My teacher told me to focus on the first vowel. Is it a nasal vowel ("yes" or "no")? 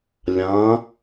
yes